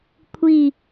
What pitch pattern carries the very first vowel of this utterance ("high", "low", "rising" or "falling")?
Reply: falling